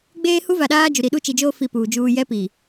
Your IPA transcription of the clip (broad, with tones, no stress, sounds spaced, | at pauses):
ɡ͡b eː˦ h u˦ v a˨ ɗ aː˦ d͡ʒ u˨ ɾ i˨ ɗ u˦ t͡ʃ i˨ d͡ʒ oː˦ f i˦ p uː˨ d͡ʒ uː˦ j ɛ˦ p iː˨